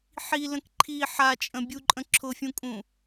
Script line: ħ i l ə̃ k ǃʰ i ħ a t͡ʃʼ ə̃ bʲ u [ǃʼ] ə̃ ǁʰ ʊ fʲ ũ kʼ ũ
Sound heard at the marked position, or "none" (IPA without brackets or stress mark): ǃʼ